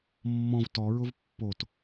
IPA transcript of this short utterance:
mːɔ̃v tɔɹʊv pːot

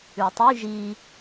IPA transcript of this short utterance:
ʉtˤy ʒi

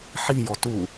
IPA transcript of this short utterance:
ħi jɔtu

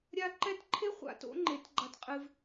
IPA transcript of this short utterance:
ɾʲa˥ ǃɛ˥t ǃʰe˥ χʷa̰˧˥ to̰˧˥ŋ͡ǃe˩˧t ɡ͡ǃa˧tqʼɨ˧v

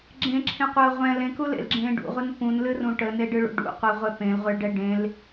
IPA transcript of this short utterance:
ɡ͡ǁẽǁʰẽqʷɜː ʁʷɛ̃ lẽkulḛlɡ͡ǁẽː ɖṵʁʷen pũnlɨrũ ʈəneɖɨɭṵ ɖṵqʷeʁʷɛ pẽlʁʷeɭɖɛ ɖẽl

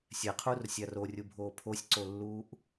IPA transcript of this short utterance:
sʲɛqʰuːrsʲa rorʲubʱoː pʰosʲǀolːuːʔ

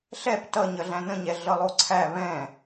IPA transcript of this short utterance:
ɬɛp tʌ ɲʌɮæ̃nə̃ɲɛ ɮʌlˠoǀʰæ βɛ̃

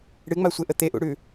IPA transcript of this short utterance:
ɽɨŋ͡masʷeʔə t̪eʔṵɽʉ

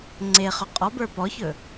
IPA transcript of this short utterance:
ŋ͡ǀeχɵ qʼɔbə˞ pɔçɵ

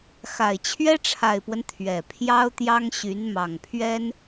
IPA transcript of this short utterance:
xa˨˩ɪ̯ t͡ɕʰɥɛ˥ʈ͡ʂʰa˨˩ɪ̯pwə˦n t̪ʰɥɛ˨˩pʰjɑ˥ʊ̯t̪jɑ˥ŋɕy˧˥n mɑ˨˩ŋpʰɥɛ˥n

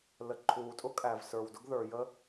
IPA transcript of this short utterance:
lə˩ǃʰuː˩tʼʊ˥kʼæ˩v sə˞˩wdʊ˥ɡ ðə˞˩jə˥

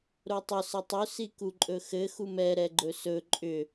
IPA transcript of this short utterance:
ɾotˤʏ sɘtˤʏ sikuǃʼɵxɘ xumɛ ɾɛɡ͡ǃɵsɵ ǃʼʏ

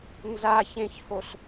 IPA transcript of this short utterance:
nzaçẽçhos

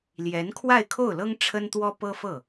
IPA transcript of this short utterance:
ljɛ˧˥n kʰwa˥˧ɪ̯kʰo˥˩ʊ̯lɤ˥ŋ ʈ͡ʂʰə˥nt̪wɔ˥ pɤ˥fɤ˥˩

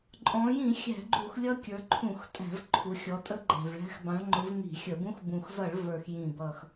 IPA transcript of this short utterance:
ǃʼɔ̃˩˧jĩ˧˩˧ xʲæ̤˧˩˧ɡ͡ǃu˧˩˧x lʲʌ˧˥kʲə˞˩˧ǃʰũ˧˩˧x tʼæ̤˧˩˧vǃʰu˩˧xʲɔ˩˧tʼə˧˥ ɡ͡ǃæ̤˨˩vɭæ̤˧˥x bɑ̃˩˧ɭŋ͡ǃʊ˩˧v ni̤˧˩˧xʲə˧˩˧bũ˧˥x bũ˨˩xzʌ˧˩˧ɭ və˞˨˩xjĩ˨˩bʌ˨˩x

